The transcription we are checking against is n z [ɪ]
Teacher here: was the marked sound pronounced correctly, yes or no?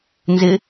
yes